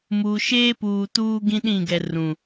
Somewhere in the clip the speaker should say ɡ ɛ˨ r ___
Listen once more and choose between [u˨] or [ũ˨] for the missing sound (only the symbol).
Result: ũ˨